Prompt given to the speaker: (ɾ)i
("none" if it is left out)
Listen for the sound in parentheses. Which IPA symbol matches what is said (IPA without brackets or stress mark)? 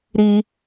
ɾ